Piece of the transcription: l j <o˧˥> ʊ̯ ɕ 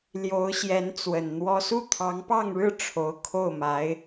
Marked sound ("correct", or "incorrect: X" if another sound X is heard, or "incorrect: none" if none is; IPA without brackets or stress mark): correct